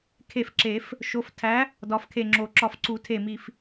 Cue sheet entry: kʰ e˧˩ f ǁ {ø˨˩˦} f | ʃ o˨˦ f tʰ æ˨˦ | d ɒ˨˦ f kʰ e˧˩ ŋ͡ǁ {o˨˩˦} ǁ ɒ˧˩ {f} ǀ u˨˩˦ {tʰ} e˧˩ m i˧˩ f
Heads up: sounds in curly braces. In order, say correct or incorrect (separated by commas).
incorrect, correct, correct, correct